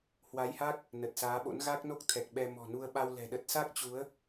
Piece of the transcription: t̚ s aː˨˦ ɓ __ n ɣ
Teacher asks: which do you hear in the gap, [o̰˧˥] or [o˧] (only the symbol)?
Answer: o̰˧˥